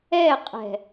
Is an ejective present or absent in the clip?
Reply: present